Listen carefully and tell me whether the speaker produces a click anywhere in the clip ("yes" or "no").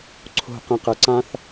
yes